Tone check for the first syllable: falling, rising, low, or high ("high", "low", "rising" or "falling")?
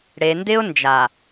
low